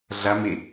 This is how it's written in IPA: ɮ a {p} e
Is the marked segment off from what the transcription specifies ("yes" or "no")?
yes